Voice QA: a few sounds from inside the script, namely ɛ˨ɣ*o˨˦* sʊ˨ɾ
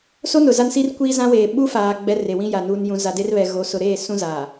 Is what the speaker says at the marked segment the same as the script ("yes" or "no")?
yes